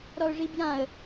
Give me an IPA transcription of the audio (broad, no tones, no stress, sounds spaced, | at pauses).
ɾ ɔ ʊ̯ ʐ i b j ã ə̯